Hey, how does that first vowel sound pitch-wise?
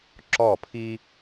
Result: falling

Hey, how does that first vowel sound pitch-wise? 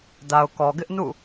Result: low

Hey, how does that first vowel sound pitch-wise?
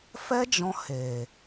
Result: high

